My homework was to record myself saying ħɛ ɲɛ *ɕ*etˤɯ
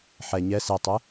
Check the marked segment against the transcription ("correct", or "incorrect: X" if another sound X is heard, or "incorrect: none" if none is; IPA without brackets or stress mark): incorrect: s